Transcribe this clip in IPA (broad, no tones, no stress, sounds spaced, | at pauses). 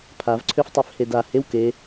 pʰ a v ǀʰ ø f tˤ ø f h e d a h e w k e